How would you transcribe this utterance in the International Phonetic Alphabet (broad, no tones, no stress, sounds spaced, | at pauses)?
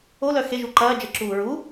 o l œ x e ʒ u ǃ ɐː d͡ʒ ə ǁ uː ɹ u